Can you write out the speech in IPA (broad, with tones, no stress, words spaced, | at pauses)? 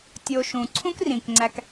tʲo˨ʃũ˩ ǀʰũ˥krĩ˩kŋ͡ǀæ˨k